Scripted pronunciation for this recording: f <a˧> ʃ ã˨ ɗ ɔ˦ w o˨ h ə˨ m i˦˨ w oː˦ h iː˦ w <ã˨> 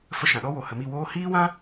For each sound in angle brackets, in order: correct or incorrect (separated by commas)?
incorrect, incorrect